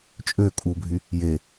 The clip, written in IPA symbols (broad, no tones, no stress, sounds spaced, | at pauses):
t͡ʃʼ ø kʼ u bʱ y | j e